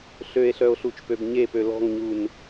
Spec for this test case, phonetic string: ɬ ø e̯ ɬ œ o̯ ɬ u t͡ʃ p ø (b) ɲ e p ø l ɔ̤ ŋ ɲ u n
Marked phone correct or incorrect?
correct